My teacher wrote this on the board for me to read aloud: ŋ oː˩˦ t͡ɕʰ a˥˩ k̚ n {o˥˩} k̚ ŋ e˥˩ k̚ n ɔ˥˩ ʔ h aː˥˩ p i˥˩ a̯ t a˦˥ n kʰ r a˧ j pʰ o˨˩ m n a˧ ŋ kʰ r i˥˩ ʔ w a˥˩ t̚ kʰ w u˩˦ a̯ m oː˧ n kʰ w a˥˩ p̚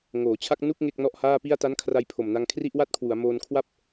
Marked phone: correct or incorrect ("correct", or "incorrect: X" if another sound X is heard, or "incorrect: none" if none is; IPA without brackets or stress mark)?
incorrect: u˥˩